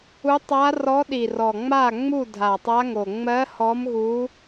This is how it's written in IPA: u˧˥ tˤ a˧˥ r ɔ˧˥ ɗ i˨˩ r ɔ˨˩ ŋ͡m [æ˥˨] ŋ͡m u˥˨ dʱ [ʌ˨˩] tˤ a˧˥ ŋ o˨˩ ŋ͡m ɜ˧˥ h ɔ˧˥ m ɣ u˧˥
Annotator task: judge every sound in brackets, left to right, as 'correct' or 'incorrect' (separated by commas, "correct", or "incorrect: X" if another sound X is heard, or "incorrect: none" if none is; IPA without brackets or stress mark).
incorrect: a˥˨, incorrect: a˨˩